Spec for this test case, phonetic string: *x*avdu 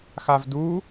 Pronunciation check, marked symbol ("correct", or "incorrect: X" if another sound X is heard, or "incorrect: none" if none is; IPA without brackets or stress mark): correct